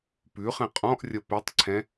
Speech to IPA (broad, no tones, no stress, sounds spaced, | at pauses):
p ʉ χ ɛ̃ qʼ ɔ̃ ʔ rʲ ʌ p ɛ tˤ ǀʰ ɛ̃